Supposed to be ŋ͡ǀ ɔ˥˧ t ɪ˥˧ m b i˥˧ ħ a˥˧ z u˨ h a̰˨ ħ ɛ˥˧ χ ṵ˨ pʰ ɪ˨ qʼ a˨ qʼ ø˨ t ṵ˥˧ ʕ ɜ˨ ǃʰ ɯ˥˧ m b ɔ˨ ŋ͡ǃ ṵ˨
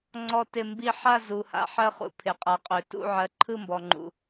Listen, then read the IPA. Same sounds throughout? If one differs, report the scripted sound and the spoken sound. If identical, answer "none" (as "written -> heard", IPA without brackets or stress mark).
ɛ˥˧ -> ɜ˥˧